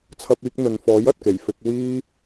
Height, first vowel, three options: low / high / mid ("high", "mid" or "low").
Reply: low